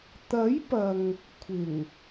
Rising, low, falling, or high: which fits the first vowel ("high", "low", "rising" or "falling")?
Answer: rising